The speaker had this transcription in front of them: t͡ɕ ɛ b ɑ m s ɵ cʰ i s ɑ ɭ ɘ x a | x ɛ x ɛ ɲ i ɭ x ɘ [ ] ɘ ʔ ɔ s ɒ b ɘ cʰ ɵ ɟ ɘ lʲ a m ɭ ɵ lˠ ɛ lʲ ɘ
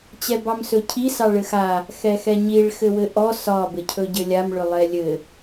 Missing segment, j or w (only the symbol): w